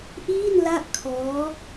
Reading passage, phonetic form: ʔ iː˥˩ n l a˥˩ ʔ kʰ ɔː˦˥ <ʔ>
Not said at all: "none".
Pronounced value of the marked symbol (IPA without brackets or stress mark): none